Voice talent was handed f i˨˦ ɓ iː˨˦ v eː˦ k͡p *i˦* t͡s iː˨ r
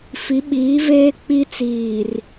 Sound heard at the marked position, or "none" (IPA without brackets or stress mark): i˦